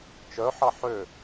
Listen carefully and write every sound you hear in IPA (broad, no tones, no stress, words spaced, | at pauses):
t͡ʃœħɑ ħø